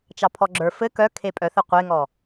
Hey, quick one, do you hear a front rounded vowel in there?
yes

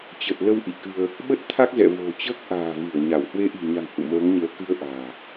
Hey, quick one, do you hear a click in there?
no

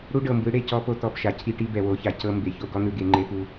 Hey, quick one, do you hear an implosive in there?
no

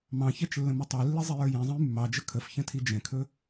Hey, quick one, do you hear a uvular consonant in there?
no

